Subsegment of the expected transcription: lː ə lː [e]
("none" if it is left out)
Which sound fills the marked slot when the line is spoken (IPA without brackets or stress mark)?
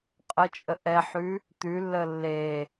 e